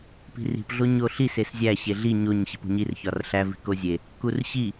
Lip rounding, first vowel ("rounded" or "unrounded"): unrounded